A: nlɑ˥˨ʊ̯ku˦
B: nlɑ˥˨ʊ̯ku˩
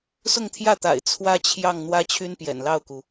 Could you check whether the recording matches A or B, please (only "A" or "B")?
B